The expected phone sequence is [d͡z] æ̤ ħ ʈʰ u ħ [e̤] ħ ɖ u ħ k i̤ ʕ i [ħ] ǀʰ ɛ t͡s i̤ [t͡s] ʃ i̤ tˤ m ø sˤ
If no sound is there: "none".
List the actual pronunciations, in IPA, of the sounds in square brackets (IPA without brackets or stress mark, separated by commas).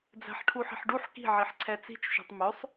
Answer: d͡z, i̤, ħ, t͡ʃ